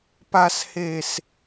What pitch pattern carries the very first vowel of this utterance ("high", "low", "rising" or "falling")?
high